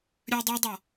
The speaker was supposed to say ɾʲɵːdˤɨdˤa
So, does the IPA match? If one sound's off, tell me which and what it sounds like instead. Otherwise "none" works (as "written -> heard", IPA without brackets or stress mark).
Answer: none